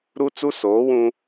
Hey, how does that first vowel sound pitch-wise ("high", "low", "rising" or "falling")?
high